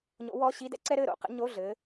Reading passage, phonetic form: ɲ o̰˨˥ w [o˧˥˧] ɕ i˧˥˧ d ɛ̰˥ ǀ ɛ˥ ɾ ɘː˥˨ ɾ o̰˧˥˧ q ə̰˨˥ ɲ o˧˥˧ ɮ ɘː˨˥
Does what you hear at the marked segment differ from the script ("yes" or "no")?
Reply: yes